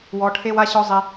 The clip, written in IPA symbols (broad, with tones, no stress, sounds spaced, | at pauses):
w ɔ˧˥ ʈʰ e˥ w a˥ ɕ ɔ˥ zˤ i˧